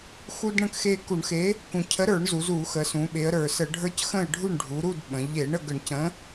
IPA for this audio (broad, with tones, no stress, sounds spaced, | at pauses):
x u˦ d ɳ ə̃˥˨ k x e˦ k u˧˩˧ ɳ x e˨˥ | k ũ˨˩ cʰ ə˨˥ ɾ ə˞˧˩˧ ɳ z u˩˧ z u˧˩˧ x ə˩˧ s ũ˩˧ ɓ e˩˧ ə̯ ɾ ə˞˨˩ s ə˧˩˧ ɖʱ ə˞˦ c x ə̃˥˨ ɪ̯ ɖʱ u˥˨ ɳ ɖʱ u˩˧ ɾ u˥˨ d ɓ ə̃˩˧ ʎ e˧˩˧ ɳ ə˥˨ ɡ ə˧˩˧ ɳ c ə̃˨˥